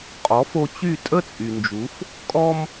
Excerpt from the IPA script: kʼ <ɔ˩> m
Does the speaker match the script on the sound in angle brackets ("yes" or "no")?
no